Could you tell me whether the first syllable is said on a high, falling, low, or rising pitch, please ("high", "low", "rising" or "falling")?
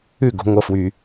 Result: falling